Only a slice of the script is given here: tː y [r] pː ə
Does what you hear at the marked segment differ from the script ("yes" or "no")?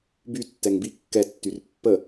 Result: no